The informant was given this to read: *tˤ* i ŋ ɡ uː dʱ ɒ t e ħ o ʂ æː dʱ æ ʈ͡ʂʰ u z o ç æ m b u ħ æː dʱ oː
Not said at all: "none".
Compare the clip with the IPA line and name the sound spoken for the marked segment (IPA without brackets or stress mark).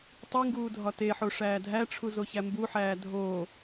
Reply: tˤ